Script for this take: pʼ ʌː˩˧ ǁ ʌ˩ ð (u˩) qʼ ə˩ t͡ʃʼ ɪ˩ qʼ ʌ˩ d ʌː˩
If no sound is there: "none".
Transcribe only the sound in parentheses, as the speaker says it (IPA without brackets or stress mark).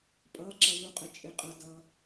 u˩